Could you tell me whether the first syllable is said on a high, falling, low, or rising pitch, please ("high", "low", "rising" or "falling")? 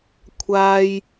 high